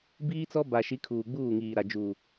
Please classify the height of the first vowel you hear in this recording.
high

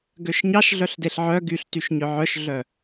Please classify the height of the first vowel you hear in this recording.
mid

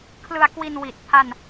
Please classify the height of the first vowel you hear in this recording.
high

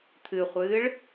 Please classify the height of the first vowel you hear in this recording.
high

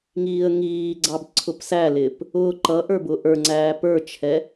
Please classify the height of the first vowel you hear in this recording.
high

